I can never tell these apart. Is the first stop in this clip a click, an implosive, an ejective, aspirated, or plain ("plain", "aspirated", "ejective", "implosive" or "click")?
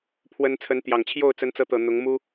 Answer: aspirated